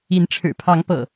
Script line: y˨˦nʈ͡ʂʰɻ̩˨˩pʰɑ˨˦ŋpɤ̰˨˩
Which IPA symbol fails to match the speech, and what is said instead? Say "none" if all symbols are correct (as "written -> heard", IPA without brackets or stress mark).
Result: y˨˦ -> i˨˦